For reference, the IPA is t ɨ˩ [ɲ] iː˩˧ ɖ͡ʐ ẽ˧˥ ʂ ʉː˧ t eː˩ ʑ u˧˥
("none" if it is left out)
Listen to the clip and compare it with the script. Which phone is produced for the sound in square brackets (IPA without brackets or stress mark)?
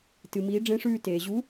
m